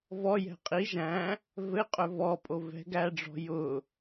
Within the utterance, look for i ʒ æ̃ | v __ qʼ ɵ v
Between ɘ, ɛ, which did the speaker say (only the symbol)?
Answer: ɘ